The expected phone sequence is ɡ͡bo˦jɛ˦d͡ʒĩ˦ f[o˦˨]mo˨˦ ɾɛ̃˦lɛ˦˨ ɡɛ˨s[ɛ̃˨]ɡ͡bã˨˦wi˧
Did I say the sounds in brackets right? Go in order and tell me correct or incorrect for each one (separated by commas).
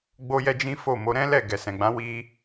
correct, correct